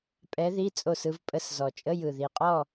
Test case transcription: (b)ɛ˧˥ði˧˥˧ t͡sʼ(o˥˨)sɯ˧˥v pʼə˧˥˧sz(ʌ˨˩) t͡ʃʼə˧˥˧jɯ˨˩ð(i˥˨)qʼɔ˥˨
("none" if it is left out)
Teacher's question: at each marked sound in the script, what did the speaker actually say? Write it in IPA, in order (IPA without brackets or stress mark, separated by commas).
pʼ, o˥˨, ɔ˨˩, i˨˩